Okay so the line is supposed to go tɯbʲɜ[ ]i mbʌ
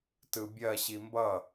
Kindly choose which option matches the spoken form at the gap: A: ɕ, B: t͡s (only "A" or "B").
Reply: A